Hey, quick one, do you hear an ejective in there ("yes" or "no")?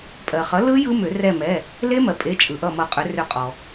yes